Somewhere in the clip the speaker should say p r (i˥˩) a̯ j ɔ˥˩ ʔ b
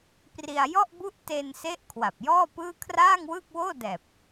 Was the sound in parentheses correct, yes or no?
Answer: no